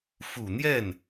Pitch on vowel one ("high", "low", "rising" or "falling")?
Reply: low